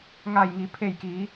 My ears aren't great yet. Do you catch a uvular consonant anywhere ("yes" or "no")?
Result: no